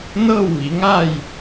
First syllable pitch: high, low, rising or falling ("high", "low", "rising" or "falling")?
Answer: falling